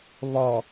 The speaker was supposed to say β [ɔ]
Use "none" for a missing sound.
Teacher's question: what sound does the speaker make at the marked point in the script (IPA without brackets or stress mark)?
ɔ